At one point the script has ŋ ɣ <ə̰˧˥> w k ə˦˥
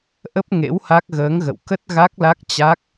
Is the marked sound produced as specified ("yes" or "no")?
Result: no